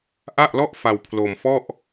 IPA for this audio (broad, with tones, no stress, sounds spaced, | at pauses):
ʔ a˥˩ ʔ l ɔ˥˩ ʔ f a˧ w pʰ l o˧ m f ɔ˥˩ ʔ